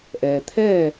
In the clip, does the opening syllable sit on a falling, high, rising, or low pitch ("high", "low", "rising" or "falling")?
low